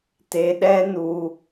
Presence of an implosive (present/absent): present